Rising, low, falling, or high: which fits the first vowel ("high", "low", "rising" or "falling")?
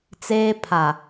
high